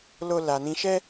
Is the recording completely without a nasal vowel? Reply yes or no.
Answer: no